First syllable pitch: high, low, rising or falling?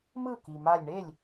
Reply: falling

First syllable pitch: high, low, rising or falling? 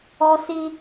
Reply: high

